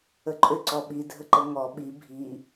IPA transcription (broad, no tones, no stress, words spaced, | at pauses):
əǃʼʏ ǀɔɓi dʱəǃəŋɔ ɓi bʱi